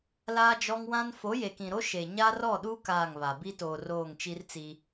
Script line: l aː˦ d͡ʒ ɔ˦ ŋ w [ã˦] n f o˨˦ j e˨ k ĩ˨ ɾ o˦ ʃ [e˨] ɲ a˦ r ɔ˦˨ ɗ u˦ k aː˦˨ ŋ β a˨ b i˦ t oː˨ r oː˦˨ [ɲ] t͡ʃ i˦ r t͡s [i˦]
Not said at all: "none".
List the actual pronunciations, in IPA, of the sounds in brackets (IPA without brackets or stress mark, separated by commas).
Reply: ã˦, e˨, ŋ, i˦